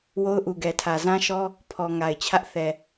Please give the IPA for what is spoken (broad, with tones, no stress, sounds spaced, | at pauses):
w o˦ ʊ̯ ʔ u˨ ɡ ɛ˨ tʰ ä˨ z ã˦ ʃ ɔ˦ | pʰ ɔ˨ ŋ a˨ ɪ̯ t͡ɕʰ ä˦ ʔ θ ɛ˨